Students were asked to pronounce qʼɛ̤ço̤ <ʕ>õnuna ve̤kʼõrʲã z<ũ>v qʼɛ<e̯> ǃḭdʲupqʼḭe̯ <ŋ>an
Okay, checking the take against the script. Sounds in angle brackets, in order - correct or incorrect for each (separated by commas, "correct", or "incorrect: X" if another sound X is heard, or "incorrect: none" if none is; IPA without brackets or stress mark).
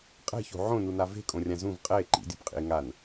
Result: correct, correct, correct, correct